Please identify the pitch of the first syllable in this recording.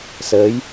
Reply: rising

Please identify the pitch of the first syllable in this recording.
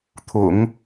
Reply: low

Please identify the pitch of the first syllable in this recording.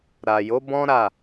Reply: low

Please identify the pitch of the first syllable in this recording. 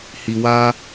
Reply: low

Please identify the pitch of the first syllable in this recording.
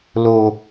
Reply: high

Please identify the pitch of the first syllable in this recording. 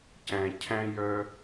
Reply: low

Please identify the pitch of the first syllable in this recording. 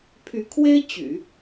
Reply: rising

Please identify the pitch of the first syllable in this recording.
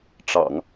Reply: low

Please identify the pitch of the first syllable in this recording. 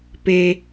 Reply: low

